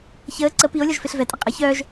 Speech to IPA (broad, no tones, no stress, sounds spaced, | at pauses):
ç əː ǀ ə p i o̯ lʲ ɔ ʒ f e ɬ v ɛ tʼ ə qʼ ə ç œː ʒ